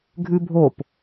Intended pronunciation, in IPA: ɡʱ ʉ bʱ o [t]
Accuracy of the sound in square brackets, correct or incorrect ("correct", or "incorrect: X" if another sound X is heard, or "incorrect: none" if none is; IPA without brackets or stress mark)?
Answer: incorrect: p